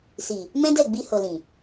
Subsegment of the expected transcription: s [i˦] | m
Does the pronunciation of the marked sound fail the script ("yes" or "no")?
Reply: yes